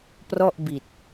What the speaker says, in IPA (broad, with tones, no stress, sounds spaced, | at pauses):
p r ɔ˥˩ ʔ b i˨˩ t̚